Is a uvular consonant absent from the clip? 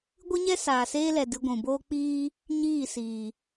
yes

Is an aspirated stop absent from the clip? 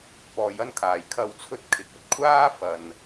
no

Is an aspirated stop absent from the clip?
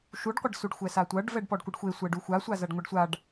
yes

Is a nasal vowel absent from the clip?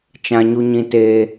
no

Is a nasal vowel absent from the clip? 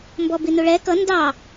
yes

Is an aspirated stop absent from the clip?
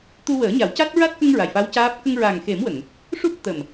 yes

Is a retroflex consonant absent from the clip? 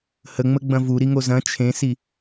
yes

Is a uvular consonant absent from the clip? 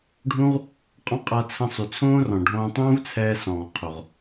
no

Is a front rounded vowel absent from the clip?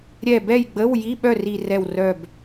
no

